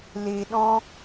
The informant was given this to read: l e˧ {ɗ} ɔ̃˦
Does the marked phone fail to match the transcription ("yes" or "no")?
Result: no